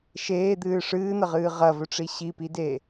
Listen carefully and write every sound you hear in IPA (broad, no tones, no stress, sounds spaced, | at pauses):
ʃ eː d̪ ɨː ʂ ɨː n̪ ɐ ʁ ɨː ʁ ɐ v ɵ ʈ͡ʂ i ɕ i p i d eː